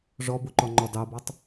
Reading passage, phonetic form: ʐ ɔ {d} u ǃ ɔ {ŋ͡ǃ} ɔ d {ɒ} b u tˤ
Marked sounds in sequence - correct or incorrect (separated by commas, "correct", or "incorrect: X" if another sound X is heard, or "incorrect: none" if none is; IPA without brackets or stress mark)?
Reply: incorrect: b, correct, incorrect: ɑ